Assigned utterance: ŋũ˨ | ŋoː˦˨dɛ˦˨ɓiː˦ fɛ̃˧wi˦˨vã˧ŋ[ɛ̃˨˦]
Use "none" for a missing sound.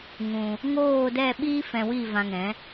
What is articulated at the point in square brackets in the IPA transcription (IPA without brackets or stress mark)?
ɛ̃˨˦